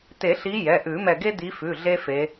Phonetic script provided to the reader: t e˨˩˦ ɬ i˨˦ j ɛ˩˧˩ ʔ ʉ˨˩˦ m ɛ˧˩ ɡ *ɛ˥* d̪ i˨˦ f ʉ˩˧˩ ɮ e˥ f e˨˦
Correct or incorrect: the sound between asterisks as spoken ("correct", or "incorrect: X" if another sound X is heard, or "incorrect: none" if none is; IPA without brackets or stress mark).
incorrect: e˥